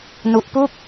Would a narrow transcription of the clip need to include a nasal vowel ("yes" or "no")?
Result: no